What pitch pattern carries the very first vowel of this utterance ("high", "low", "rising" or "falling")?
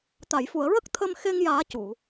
low